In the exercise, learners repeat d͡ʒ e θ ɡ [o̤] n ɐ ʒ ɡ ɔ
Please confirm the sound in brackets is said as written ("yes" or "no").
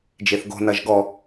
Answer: yes